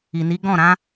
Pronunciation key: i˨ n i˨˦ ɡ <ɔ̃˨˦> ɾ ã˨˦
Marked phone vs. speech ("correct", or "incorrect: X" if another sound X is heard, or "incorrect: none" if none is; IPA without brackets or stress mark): incorrect: ɔ̃˦˨